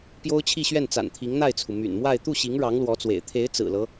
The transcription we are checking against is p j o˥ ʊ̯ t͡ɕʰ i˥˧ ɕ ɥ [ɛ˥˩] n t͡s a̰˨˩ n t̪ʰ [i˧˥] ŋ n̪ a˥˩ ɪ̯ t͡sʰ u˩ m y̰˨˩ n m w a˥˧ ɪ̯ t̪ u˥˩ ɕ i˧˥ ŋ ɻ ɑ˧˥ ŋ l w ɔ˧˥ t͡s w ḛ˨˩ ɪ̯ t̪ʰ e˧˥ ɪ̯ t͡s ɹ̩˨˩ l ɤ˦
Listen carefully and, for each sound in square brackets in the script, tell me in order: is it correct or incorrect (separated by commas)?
correct, correct